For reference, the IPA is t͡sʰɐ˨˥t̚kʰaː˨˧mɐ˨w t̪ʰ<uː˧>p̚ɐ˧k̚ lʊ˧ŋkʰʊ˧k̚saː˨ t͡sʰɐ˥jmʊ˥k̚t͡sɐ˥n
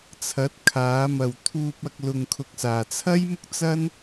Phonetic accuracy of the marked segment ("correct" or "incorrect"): correct